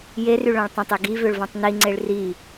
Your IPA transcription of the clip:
jery ɭœ̃ɭtˤœ̃tˤe ɡivøɭ vɔ̃tˤniŋ͡ǀeɭ ri

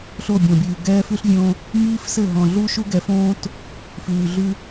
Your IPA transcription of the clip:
ɬo˦˨bʲɔ̃˨bʲʉː˨ ɡɛː˦fʉ˦ɬvʲõ˦ | miː˦fsɘ˦˨ɦɔ̃˨ ɮu˦ʃu˦ɡɛ˨˦fõː˦t | fʉː˨ ɮʉ˦

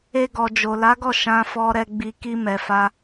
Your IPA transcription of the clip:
e˧ɡɔ˨ d͡ʒo˨la˨˦ɡɔ˦˨ ʃã˧fɔ˧ɾɛ˧ɡ͡bi˧ ki˧mɛ˨fa˧

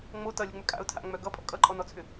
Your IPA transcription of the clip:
ŋ͡mo tʌlʲoŋ͡mʏ kʼa̰ʊ̯tʰa̰ŋ͡mœ ɡʌpʼɔ̰ kʼʌǃʼɔnɔt͡sʰʏ

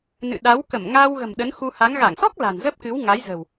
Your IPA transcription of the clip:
nɨ̰˧˨ɗa˨˦w kə˧˩mŋa˧wɣə̤˨˩m ɗə˨˦nxu˧ha˨˦ŋ ɣa˧˩ŋsɔ˦˥k̚ la̤˨˩nzə˦˥p̚kɨ˨˦w ŋa˨˦jzə̤˨˩w

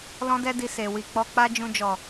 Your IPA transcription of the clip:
lɔ̃˦dɛ˦di˧ se˨ wi˧k͡pɔ˦ k͡pa˦ d͡ʒũ˧d͡ʒɔ˨

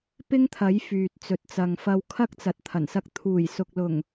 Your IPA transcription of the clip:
pɪ˥ŋt̪ʰɐ˨˥j fyː˨t̚t͡sɵ˨t̚t͡sɐ˨ŋ fɐ˧wkʰɐ˥k̚ t͡sɐ˨t̚t̪ʰɐ˨˩nsɐ˧k̚ t̪ʰuː˨˩jsʊ˨k̚lʊ˨˩ŋ

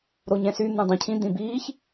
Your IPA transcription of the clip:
ɾoɲɛ̃sy n̪ũdˤũcʰĩ d̪ĩbiːç

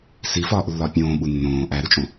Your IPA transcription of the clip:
sifɒːʔlːɒ pʲõːɓu nːõː ʔæɾut͡ʃʼõ

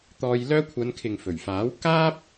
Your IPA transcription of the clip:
t̪ɔː˧jlœː˥ kʷʰɐ˨˧nkʰɪ˨ŋ fɵ˨˩ɥfaː˨˥wkaː˥p̚

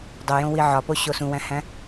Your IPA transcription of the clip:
dˤojõ wiʕɒpo ɕosũwæ̃hæ̃

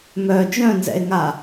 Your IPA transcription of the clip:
mœ d͡ʒœ̃nzɛ̰e̯ŋa

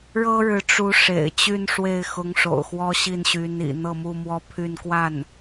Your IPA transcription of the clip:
ɻɤ˥ɻɻ̩˧˥ ʈ͡ʂu˧˥ ʂḛ˨˩ɪ̯t͡ɕy˥˧n ʂwe˥˩ɪ̯xʊ˧˥ŋ ʂo̰˨˩ʊ̯xwɔ˥ ɕi˥˩nɕy˧˥nḭ˨˩ n̪ɤ˥˧mu˥˧mwɔ˥˧ pʰy˥˧nkwa˥˩n

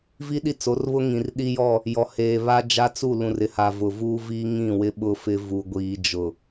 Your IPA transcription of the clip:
vi˦ɗi˦t͡so˨˦rβʊ˦ ŋĩ˨rɗi˦jɔ˦˨ | jɔ˨heː˨ βa˦d͡ʒa˦t͡su˦˨ lũ˨rɪ˨ ha˨ vʊ˨vuː˦viː˦ ŋĩ˦˨wɪ˦ ɓʊ˦fɪ˦ vu˨ɡʷiː˨d͡ʒʊ˨

